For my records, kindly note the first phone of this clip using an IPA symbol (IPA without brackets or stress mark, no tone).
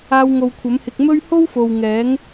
aː